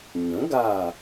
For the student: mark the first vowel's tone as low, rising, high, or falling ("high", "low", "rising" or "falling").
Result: rising